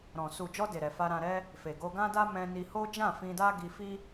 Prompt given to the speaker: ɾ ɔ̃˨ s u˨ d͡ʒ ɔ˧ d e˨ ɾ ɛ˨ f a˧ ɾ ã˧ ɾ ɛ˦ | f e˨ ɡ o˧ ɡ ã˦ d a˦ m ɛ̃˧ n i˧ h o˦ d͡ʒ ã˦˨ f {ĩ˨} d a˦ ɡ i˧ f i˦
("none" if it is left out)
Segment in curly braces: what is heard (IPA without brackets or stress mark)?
ĩ˧